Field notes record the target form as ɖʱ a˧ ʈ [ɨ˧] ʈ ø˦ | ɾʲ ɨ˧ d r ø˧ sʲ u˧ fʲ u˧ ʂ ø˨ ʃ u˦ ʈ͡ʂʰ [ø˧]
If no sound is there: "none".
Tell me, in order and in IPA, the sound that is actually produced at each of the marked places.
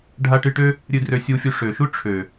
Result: ɨ˧, ø˨

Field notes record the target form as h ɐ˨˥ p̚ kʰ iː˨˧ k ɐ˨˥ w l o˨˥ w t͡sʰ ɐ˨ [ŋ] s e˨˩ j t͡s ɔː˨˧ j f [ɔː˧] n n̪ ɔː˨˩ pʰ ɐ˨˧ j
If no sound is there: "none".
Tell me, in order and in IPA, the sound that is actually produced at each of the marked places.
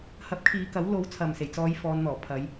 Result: m, ɔː˨˧

